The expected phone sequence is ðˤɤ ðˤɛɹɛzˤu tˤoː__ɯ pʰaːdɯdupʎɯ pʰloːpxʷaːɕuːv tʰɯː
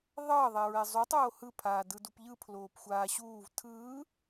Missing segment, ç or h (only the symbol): h